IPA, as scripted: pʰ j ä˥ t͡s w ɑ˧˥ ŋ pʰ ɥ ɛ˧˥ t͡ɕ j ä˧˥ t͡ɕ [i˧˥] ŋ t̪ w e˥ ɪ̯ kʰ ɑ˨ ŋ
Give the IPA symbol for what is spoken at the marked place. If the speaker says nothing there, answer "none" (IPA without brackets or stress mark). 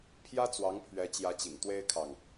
ḭ˨˩